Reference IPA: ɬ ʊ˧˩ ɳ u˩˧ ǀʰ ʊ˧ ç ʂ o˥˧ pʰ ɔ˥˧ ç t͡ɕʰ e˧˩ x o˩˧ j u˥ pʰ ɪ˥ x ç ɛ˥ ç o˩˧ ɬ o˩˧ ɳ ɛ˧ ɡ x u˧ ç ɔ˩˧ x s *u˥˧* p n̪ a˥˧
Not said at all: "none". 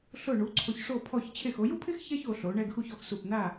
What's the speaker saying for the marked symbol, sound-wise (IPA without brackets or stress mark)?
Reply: u˧˩